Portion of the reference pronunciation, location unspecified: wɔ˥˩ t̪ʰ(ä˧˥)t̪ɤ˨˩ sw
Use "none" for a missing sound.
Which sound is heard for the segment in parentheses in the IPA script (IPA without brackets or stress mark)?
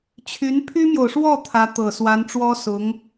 ä˧˥